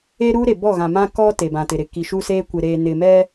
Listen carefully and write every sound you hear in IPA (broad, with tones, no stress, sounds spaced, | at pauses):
e˦ ɾ uː˦ ɾ e˨ b ɔ˦˨ ɣ ã˨ m ã˦ k ɔ˦ t e˨ b ã˨ t ɪ˨ ɾ ɪ˨ k i˨ ʃ u˦ s eː˦ kʷ ɪ˨ ɾ eː˨ n ɪ˨ m ɛ˦